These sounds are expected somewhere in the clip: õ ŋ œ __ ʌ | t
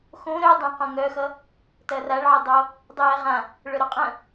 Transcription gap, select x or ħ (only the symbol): x